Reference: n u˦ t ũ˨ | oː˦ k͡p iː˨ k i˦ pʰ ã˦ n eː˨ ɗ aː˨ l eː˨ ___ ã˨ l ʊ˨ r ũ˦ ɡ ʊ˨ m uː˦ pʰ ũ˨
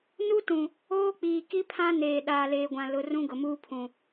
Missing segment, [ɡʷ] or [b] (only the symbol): ɡʷ